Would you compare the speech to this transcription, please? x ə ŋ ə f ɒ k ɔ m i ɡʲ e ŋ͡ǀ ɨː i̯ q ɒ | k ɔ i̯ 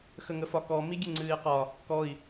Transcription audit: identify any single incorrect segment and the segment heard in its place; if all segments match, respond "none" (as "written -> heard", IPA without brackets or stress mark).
none